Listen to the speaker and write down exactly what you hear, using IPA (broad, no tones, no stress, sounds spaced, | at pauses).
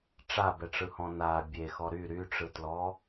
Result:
ʈ͡ʂ a b ɛ ʈ͡ʂ ɯ h ɔ̃ n a bʲ e x ɔ ɾ y ɾ y ʈ͡ʂ ɯ t l ɔ